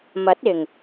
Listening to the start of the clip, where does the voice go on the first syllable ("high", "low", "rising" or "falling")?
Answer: rising